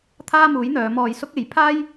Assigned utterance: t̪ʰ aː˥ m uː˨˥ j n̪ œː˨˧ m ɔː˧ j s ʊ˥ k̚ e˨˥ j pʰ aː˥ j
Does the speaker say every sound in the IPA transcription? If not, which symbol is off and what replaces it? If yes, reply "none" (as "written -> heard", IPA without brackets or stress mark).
none